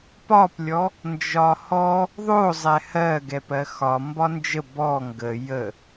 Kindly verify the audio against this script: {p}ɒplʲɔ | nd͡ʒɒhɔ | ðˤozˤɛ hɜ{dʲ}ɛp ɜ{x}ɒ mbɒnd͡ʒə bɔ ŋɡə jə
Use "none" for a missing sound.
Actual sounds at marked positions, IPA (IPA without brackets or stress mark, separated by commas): p, ɡ, x